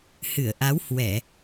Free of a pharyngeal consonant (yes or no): yes